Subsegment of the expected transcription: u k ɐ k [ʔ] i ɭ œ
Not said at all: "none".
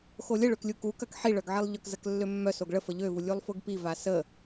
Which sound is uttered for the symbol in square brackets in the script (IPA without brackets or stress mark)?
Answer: ħ